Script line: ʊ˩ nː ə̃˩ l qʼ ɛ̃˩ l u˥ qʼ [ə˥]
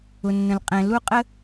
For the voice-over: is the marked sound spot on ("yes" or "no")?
yes